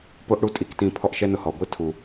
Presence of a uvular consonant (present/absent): absent